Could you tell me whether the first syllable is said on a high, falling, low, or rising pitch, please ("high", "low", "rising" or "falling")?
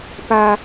high